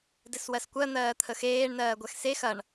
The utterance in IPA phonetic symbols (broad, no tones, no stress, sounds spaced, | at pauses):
d ɘ s w ɜ s kʷ ɜ n̪ ɜː t̪ʰ ə x eː ɳ n ɜː ɡʷ ɛ x s e x ɐ ɳ